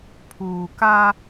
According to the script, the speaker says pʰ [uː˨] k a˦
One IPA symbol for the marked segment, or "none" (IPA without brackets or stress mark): uː˨